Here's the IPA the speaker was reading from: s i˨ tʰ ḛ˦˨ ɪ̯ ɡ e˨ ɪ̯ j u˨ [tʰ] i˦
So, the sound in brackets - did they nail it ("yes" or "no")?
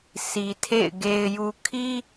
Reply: no